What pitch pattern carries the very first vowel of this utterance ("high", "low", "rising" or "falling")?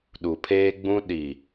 low